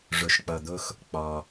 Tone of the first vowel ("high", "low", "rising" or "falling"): low